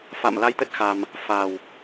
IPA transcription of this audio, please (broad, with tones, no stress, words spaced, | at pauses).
fa̰˧˨mla˧jt̪ə˦˥t̚ xa˧m | fa˨˩w